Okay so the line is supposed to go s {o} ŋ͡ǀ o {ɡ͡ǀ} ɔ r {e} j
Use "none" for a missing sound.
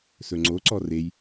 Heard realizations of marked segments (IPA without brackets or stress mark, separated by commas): ɵ, ǀ, e